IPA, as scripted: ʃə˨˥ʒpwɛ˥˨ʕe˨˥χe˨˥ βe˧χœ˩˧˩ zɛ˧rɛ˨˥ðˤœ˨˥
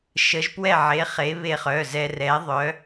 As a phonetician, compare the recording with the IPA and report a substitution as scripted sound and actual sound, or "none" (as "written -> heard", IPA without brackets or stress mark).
none